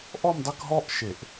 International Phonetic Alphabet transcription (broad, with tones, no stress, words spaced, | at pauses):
ʔɔ˥˧mdˤɘ˥˧kɦɔ˥˧ʔ ʃe˨˩˦ʔ